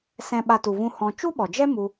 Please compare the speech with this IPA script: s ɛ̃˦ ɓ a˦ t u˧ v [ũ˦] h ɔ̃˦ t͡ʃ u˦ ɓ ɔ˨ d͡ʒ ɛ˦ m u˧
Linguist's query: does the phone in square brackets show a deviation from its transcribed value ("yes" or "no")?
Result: no